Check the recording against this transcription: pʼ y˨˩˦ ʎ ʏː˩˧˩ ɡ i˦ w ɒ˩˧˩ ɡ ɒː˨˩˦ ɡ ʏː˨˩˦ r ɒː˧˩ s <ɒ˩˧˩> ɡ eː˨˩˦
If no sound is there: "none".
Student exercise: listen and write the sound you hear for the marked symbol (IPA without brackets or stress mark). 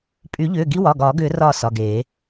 ɒ˩˧˩